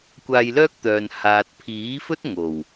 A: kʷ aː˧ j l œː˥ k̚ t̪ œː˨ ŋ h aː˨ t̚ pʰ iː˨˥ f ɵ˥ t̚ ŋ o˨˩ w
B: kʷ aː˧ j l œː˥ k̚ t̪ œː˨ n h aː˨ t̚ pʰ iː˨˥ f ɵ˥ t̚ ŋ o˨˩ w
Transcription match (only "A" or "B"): B